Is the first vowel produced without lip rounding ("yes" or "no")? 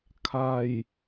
yes